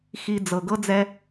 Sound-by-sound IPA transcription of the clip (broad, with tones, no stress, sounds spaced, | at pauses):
x i˦ d͡z ɤ˨ ɡ ɤ˦ d͡z ɛ˦